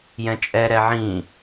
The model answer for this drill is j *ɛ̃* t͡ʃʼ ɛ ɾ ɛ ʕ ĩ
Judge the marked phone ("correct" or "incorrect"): correct